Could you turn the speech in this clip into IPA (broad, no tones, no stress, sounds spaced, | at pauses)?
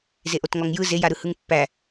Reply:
z e ʔ o t ŋ ɔ ŋ j ɯ z e j a ɾ ɯ h ɯ ŋ pː æ